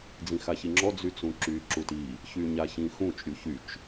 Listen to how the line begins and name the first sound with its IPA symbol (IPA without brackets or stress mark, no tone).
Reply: d͡z